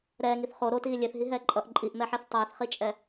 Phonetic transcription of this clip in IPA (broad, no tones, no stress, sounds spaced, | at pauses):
ɾ ɛː ŋ i θ χ o ɾ o t iː lʲ e θ ɦ i ɦ ɛː ǃʼ ʌ ʔ ǃʼ i ʔ m ɛ ħ e θ tˤ ɛː θ χ i t͡ʃʼ ɛ